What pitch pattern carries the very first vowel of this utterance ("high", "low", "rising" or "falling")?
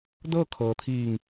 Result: falling